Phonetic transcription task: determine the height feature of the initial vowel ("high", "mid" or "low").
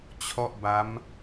mid